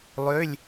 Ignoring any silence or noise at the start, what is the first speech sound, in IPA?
lˠ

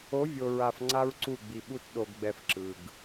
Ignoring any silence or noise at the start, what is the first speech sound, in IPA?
o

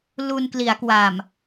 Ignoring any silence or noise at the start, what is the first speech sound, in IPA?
l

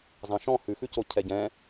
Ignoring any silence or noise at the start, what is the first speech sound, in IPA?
z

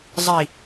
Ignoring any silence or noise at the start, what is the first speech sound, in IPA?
zˤ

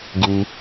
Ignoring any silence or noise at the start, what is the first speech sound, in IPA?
ɡ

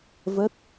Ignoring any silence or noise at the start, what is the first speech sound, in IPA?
v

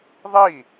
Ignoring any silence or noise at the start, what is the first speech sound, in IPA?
ðˤ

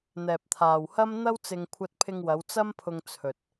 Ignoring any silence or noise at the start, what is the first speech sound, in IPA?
n̪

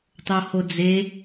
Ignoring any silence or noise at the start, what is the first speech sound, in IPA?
tˤ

